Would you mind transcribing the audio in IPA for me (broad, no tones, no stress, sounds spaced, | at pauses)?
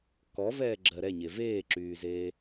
k ɔ v ɛː ɡ͡ǁ ɜ ɾ ɛ ɲ e v eː ǁ yː z eː